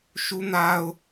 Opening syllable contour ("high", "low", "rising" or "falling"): high